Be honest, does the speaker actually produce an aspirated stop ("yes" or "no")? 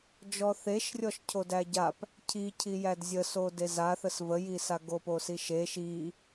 yes